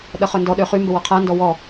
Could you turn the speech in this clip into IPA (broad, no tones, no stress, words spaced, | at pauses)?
ɗɐχœndɔ ɗøχy mbəwɔqʰa ndɔwɔ